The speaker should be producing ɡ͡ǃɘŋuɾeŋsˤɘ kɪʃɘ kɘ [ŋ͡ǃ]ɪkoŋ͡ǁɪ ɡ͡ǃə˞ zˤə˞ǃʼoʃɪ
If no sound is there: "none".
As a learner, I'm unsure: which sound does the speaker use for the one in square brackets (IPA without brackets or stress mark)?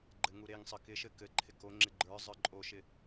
ǃʰ